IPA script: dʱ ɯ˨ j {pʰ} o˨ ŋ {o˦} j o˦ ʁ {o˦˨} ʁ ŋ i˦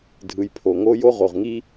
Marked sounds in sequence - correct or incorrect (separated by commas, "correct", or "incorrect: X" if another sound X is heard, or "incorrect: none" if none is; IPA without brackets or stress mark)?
correct, correct, incorrect: o˨